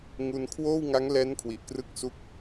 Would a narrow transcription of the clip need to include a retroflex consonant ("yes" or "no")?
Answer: no